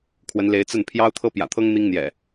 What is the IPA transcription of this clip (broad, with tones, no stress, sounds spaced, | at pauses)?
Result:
kʰ w ə˨˦ n l e˨˦ ɪ̯ t͡s ə˥˨ n pʰ j ɑ˦ ʊ̯ t̪ʰ ɤ˦ p j ä̰˨˩ t̪ʰ ɤ˦ ŋ n̪ i˦ ŋ n̪ j ɛ̰˨˩